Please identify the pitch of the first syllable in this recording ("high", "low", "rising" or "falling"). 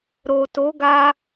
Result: low